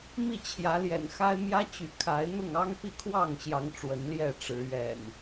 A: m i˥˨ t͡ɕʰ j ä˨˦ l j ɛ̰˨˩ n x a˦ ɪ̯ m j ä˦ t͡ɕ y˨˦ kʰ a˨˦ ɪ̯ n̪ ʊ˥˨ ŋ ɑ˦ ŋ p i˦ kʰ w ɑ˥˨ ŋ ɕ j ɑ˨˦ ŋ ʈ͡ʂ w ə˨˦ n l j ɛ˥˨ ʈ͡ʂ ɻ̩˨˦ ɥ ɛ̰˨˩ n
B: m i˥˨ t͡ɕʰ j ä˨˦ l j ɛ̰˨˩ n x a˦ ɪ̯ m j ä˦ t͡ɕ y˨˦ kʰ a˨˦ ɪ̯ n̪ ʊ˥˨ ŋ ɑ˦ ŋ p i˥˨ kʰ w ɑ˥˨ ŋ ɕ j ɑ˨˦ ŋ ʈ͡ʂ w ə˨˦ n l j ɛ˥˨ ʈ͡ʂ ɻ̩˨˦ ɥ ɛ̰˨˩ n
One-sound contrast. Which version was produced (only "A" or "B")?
B